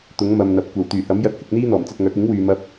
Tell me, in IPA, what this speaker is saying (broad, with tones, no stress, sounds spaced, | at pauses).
t̪ ʊ˨˥ ŋ m ɐ˨ m n̪ ɐ˨ p̚ kʷ ɐ˨˩ w t̪ yː˨˩ h ɐ˨˥ m j ɐ˧ t̚ h ɪ˧ k̚ n̪ iː˥ n̪ ɔː˨˩ m t͡s ɐ˧ t̚ ŋ œː˨˥ k̚ ɪ˨˥ ŋ w yː˨ m ɐ˧ p̚